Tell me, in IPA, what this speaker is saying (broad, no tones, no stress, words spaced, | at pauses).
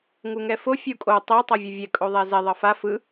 ŋuŋɛfo fʲukʼo tˤe tˤʌvʲʌvʲɛ kʼoðˤɛzɛ ðˤʌfa fɯ